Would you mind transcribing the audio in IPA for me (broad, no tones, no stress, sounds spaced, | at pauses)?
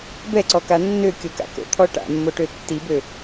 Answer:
b ɛ ǀ ɔ k a nː ø kʲ o k a̰ k o̰ t̪ʰ ɔ ʈ a̰ mː o ʈ ø tː i b ø